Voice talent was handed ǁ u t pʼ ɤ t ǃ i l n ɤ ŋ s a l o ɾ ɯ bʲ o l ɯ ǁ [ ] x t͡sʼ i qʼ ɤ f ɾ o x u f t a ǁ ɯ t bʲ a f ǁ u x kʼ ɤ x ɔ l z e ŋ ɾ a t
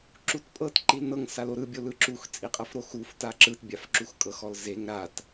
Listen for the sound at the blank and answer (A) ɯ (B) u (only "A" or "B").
B